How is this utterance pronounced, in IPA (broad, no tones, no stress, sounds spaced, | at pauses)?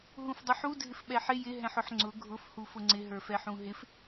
ɦ ũ f dˤ u ħ u dʱ ɪ f ɓ ɛ ħ ɪ j ɪ ɦ ɛ̃ ħ ʊ ħ ŋ͡ǀ ʊ ɡʱ ʊ f h u f ʊ ŋ͡ǀ ɪ ɦ ə˞ f ɛ ħ ũ ɦ ɪ f